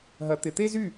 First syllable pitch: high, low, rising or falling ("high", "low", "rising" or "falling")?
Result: rising